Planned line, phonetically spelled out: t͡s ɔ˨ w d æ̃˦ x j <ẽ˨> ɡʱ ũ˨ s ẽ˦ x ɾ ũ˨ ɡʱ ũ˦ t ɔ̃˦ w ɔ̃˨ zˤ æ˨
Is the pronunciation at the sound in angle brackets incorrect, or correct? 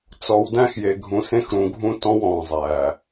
incorrect